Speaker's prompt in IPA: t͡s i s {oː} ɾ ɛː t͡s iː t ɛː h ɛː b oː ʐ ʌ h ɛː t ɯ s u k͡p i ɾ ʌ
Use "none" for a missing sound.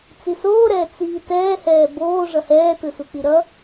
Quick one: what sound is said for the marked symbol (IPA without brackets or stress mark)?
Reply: oː